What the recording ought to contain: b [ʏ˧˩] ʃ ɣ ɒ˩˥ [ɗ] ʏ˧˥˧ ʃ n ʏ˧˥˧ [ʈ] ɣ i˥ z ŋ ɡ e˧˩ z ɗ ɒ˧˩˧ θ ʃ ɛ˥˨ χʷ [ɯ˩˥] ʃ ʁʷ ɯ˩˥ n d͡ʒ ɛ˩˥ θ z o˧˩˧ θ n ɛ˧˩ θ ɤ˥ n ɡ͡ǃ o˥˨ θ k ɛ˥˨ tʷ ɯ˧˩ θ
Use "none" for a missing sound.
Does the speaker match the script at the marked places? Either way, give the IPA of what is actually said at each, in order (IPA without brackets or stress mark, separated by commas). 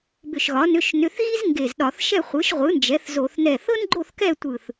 ʏ˧˩, n, θ, ɯ˩˥